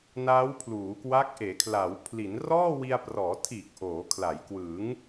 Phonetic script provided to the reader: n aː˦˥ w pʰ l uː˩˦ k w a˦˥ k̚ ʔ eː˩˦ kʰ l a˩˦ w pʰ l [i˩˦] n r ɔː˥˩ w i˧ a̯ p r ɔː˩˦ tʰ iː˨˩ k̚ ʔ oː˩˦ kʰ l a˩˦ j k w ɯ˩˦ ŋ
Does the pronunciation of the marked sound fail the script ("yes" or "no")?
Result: no